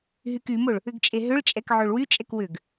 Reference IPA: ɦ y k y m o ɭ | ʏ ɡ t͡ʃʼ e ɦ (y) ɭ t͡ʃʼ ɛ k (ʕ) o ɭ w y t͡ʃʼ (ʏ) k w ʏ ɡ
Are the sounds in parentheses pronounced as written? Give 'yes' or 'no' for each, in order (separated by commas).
no, yes, no